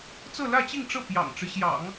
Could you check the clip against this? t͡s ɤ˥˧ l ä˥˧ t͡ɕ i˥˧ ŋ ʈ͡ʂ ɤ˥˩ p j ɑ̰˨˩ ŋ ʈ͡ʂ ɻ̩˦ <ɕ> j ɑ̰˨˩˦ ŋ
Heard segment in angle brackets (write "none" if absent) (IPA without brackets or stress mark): ɕ